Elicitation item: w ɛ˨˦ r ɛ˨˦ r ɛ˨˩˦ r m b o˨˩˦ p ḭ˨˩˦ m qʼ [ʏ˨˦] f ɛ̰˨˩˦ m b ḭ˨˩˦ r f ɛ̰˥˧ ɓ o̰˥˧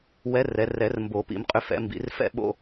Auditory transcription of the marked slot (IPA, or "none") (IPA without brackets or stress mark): ʏ˨˦